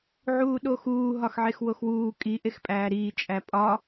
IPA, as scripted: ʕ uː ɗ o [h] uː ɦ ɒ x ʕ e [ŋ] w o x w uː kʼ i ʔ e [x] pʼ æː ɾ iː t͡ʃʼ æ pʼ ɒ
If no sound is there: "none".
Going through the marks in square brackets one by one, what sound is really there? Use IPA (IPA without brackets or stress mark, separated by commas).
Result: x, x, x